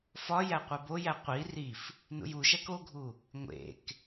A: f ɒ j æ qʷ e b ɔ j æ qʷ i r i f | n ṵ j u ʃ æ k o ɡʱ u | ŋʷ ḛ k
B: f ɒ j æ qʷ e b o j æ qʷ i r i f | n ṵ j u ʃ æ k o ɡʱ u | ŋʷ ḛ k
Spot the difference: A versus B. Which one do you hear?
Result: B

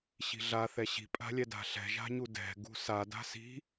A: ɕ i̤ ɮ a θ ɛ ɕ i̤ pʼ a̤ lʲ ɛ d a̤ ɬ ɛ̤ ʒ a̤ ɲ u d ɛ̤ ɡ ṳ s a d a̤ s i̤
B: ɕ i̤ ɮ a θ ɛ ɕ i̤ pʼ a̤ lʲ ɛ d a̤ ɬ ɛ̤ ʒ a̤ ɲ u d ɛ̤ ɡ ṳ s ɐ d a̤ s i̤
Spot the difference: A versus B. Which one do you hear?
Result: A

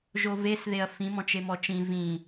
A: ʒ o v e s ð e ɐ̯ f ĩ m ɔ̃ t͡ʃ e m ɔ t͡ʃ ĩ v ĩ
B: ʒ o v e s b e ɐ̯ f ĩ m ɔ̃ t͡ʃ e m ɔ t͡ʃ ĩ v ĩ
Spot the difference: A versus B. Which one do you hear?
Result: A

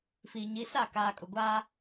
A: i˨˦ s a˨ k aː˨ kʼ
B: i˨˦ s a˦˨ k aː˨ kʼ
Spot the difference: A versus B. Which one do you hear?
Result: B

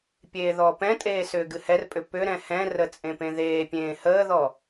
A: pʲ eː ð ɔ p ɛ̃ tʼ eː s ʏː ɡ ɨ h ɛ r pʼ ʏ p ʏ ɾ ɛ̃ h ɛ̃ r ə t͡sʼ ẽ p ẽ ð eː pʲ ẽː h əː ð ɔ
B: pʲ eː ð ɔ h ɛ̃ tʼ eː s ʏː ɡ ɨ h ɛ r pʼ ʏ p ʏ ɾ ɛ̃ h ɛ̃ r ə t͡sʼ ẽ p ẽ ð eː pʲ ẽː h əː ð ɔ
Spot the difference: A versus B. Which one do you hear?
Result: A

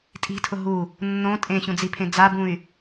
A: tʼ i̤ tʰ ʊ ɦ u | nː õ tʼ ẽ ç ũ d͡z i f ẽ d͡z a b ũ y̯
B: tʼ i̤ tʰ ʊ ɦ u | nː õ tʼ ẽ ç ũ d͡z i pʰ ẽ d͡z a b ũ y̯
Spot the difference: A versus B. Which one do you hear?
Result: B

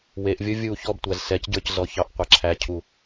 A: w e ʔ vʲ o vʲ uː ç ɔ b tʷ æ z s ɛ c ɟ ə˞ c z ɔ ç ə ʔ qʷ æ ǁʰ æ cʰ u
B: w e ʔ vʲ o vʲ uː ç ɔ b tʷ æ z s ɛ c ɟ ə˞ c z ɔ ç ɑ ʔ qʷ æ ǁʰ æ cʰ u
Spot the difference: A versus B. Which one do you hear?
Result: B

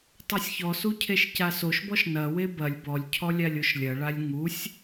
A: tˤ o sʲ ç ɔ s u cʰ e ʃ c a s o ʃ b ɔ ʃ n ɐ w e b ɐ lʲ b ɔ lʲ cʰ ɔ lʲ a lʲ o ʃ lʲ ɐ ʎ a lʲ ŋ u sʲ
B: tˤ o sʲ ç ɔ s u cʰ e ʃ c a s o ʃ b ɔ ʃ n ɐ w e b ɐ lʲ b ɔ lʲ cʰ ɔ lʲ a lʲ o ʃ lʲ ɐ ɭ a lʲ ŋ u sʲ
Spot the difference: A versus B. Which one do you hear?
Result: B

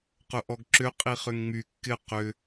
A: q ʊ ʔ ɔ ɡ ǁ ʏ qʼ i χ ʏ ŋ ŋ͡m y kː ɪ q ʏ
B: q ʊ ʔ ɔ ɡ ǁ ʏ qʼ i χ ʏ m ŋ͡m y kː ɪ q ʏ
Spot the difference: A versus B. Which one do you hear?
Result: A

